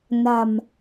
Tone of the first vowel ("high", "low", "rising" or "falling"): low